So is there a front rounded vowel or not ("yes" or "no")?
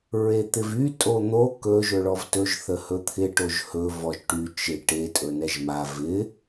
yes